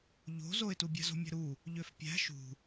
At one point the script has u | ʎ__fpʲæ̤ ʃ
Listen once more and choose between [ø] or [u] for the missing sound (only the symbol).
ø